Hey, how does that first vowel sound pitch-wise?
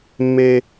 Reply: high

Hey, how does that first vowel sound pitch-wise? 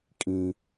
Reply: high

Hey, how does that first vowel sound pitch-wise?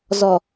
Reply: low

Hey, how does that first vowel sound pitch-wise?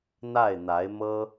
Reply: falling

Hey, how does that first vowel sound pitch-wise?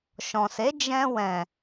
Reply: low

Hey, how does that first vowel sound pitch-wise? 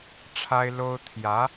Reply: high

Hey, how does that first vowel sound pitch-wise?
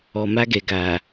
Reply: low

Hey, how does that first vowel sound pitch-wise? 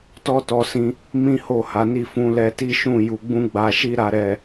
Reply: high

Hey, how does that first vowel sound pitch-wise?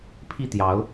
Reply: falling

